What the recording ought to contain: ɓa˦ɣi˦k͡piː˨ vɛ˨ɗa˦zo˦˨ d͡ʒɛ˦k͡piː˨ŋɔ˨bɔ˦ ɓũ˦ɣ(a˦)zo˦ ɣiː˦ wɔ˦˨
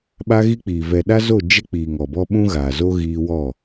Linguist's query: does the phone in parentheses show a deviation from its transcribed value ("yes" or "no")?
yes